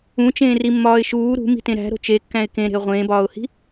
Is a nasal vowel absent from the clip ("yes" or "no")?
no